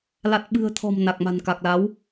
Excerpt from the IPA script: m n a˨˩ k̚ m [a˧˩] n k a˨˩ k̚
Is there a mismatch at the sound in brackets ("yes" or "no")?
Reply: yes